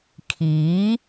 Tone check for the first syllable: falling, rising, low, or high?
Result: rising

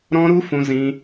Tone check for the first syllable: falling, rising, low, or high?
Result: high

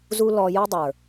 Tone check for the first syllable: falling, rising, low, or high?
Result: high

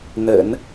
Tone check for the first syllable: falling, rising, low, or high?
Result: low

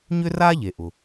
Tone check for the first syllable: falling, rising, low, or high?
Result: high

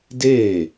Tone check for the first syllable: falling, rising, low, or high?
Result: falling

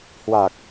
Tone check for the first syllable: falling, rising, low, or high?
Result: low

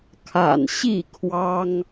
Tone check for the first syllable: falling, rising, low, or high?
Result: low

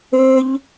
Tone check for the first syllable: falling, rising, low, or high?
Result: high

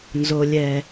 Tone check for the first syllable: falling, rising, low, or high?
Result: high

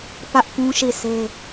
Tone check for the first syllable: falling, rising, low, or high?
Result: high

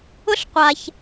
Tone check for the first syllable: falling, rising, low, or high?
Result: high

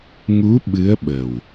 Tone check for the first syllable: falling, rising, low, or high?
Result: rising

